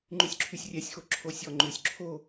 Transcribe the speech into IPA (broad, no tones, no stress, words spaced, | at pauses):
ŋ͡ǃʉsʲǁʰysʲrʲɛsʲxo ǁʰosʲɔŋ͡ǃʉsʲ ǁʰo